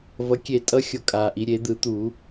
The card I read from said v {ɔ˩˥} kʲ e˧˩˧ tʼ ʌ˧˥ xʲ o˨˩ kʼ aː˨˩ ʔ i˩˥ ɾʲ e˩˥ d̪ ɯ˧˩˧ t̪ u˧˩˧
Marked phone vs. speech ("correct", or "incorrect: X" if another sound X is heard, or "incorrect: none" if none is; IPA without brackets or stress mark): incorrect: ʌ˩˥